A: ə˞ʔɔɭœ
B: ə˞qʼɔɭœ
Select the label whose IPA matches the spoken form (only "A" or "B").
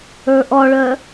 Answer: A